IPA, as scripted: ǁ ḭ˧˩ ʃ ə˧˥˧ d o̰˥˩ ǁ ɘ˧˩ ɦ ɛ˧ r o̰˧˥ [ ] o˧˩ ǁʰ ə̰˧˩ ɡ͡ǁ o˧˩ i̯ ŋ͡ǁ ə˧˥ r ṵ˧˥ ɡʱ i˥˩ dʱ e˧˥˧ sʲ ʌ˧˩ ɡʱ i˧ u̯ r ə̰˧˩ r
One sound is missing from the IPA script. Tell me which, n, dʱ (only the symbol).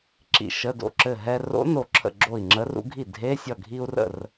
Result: n